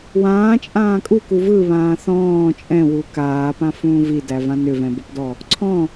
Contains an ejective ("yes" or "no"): yes